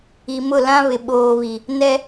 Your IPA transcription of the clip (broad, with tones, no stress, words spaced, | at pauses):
i˨mʊ˦˨lã˦ βɪ˨ɓoː˨βi˨ | nɛ˦